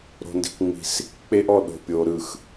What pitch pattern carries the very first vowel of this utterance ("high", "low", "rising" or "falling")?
low